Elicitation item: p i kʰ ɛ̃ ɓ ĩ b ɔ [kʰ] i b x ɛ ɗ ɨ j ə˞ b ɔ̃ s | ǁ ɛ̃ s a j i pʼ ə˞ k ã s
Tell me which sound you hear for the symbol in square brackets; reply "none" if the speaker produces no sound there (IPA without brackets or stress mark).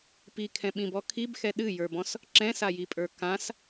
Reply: kʰ